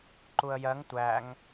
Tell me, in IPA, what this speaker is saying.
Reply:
ǃuə̯jɜŋ tʷæŋ

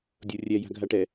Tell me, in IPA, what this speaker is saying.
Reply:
dʲorʲɛ ja̤ɡʱaʈɛ

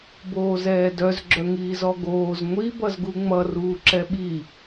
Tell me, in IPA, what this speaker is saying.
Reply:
boːzɛːdœz ɡ͡ǁœŋiːzɔɡoːz ŋʷi bʌzɡuŋ͡mʌ ruːǁɛɓi

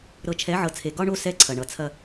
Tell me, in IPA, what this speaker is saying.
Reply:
ɾɤ˨t͡ʃʰɛ˨˦ʕɤ˨t͡sʰe˨ ɡɒ˦ɳo˦ sɛ˦ǀʰɐ˨ ɳʌ˨˦t͡sʰɐ˦

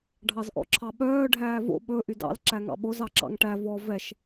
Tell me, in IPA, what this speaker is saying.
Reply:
ɖʱɑzʔɔ̰ǁʰɑɓœː ɖʱæːvo̰ ɓɵ ʔydɑ̰l ǁæŋɑ̰ɓoz ɑǁɑ̰ŋʈæ vɔ vɛʃ

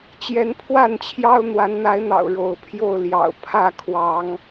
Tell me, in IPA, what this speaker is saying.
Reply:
t͡ɕjɛ˨˦n pʰwa˥˨nt͡ɕʰjɑ˦ʊ̯ n̪wa˨˦nn̪a˨˦ɪ̯n̪ɑ̰˨˩ʊ̯ ɻo˨˦ʊ̯pʰjo˥˨ʊ̯ ljɑ̰˨˩ʊ̯ pʰä˥˨ kʰwɑ˨˦ŋ

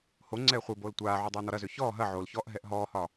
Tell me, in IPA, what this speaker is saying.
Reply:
ho ŋ͡ǀɛːχʷeboːl tʷaːʕu dˤɛːnɔɾɐzø çɔː ɦɐ ʕolçɔːʔ ɦɛʔɦɔːhɒː

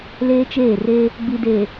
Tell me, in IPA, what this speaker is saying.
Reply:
leː˦t͡ʃeː˦˨re˦ | ɡ͡bi˨de˨

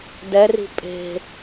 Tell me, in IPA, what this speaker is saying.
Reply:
dɛri̤ pʼe̤

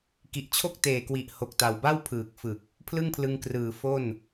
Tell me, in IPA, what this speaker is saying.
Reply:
ki˨˩ʔt͡ɕʰo˥˩k̚teː˨˩kwi˨˩ʔ ho˨˩k̚ta˨˩wba˥˩w pʰɯː˨˩k̚fɯ˨˩k̚ | pʰlɯ˥˩ŋpʰlɯ˧ŋkrɯː˨˩ fo˥˩n

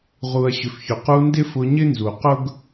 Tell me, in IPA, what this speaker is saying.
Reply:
ʁu˨ɐ̯ɕʏ˨fçʏ˨qu˧ ndɪ˦fʊ˧ɲɪ˦ nzu˨ qʊ˦ɡ

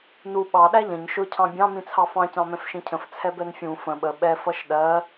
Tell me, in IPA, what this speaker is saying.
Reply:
nu ɓɑ ɗæʎə̃ɲ ʃʊ cʰɑ̃bʲɑ̃ mĩt͡sʰɑfɑ̃ cɑ̃mɛ̃fʃĩcʰə̃f t͡sʰɛbɛnfʲũ fə̃ ɓə ɓɛ fʌʃɗɜ

